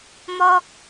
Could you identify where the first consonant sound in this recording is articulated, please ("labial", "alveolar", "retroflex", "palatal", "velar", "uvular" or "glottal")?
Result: labial